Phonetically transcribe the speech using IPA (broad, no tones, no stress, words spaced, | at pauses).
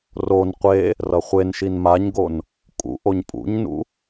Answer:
ron qʷe | rʌχʷenʃin maɲɡon | kʼṵʔoɲ pʼṵɲnṵ